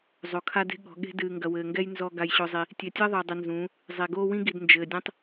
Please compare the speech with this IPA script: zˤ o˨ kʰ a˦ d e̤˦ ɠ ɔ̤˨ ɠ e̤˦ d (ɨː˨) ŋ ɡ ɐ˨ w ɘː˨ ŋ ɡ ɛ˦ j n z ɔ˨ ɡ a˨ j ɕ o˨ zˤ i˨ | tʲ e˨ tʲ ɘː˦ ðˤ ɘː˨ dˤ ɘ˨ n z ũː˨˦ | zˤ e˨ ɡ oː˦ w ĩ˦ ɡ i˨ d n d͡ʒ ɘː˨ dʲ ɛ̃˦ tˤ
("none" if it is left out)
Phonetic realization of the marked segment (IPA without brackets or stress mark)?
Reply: ɨː˨